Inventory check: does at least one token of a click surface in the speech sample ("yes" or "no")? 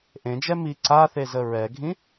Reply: yes